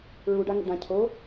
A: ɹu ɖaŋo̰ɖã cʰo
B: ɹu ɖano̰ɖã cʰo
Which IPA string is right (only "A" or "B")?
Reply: A